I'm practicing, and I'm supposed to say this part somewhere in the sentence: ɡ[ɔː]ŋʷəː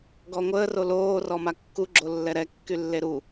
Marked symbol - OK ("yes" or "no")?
no